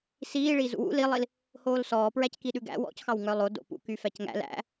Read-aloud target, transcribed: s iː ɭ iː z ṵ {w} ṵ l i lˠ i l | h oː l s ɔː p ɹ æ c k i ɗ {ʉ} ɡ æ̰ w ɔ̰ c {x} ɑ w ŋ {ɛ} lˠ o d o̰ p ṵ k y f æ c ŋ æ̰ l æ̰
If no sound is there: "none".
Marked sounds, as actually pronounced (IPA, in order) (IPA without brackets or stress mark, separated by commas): w, ʉ, x, œ